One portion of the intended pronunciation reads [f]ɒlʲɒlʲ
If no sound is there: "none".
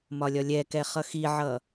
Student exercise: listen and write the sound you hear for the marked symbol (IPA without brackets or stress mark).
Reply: m